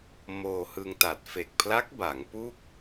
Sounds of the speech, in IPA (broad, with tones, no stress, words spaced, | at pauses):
moː˧hɯ˧ŋta˨˩t̚ fe˨˩k̚pʰla˦˥k̚ ba˩˦ŋpu˥˩k̚